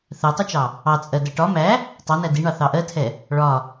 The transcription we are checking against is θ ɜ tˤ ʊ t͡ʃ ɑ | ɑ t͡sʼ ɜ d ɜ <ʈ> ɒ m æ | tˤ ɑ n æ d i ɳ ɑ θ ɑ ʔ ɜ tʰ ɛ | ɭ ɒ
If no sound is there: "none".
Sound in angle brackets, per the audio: ʈ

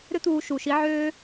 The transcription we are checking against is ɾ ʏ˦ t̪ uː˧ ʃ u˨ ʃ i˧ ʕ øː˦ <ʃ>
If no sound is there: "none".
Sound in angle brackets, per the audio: none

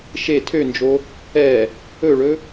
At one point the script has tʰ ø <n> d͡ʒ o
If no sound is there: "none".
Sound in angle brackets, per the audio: n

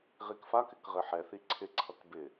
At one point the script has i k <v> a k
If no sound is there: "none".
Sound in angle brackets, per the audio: f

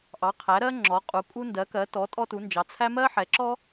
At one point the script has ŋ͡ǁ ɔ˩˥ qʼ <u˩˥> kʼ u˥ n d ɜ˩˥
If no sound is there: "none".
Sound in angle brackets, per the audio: u˩˥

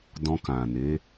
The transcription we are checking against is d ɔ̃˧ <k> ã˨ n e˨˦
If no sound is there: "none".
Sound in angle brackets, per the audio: k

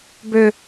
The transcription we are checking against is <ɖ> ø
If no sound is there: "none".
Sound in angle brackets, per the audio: b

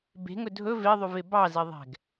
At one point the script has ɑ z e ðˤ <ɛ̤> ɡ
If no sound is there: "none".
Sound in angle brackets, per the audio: ɛ̤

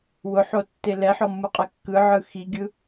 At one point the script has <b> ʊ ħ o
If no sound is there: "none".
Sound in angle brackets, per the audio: w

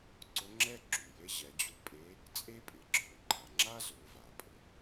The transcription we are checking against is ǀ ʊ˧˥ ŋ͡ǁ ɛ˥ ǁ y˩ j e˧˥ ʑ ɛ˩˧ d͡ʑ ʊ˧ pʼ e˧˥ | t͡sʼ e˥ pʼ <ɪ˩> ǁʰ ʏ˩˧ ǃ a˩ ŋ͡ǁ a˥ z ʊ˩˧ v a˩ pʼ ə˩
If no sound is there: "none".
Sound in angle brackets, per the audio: ɪ˩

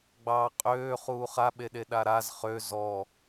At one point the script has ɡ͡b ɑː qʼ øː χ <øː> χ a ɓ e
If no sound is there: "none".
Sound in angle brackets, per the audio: uː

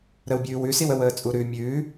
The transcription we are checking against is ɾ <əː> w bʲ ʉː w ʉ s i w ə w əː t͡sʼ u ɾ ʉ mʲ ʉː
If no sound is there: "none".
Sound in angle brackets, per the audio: ə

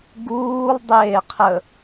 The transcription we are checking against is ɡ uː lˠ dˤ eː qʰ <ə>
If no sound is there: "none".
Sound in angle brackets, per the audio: ə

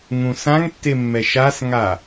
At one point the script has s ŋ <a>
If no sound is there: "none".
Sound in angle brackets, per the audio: a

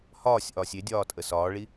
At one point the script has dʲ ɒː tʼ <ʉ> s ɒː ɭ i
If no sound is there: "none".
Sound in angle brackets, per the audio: ə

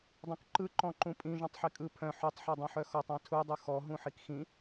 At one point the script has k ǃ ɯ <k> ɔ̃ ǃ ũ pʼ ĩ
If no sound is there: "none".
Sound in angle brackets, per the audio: ǃ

